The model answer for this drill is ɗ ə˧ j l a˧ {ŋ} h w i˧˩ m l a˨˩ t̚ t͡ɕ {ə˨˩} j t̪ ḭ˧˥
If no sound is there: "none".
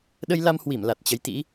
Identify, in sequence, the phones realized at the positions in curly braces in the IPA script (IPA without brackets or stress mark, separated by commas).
m, ə˨˦